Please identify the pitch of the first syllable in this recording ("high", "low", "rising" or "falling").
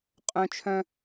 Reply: high